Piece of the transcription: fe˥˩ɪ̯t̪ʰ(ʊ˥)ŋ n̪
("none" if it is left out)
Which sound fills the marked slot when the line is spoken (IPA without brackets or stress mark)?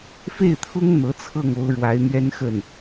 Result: ʊ˥